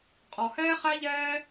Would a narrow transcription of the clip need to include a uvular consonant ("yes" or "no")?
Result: yes